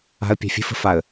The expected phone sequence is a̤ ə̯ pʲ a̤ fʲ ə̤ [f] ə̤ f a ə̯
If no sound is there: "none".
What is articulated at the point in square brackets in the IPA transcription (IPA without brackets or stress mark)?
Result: f